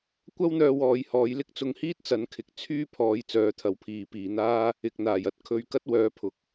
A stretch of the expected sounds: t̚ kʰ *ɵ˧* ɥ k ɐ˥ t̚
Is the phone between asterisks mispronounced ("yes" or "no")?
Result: no